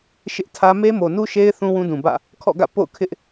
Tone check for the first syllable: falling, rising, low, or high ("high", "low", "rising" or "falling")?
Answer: high